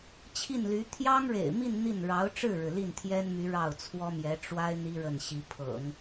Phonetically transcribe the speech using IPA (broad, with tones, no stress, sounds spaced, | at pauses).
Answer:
t͡ɕʰ i˥˩ n l y˧˥ t̪ʰ j ɑ˥ ŋ ɻ ḛ˨˩ ɪ̯ m i˥˧ n n̪ i˥˩ n ɻ ɑ˧˥ ʊ̯ ʈ͡ʂ ɻ̩˥˩ ɻ ɻ̩˩ l i˥˩ n t̪ʰ j ɛ˥ n m y˧˥ ɻ ɑ˥˩ ʊ̯ t͡sʰ w ɔ˥ m j ɛ˧˥ ʈ͡ʂ w a˥ ɪ̯ n̪ i˥ ɻ ə˥˩ n ɕ i˧˥ pʰ ɤ̰˨˩˦ ŋ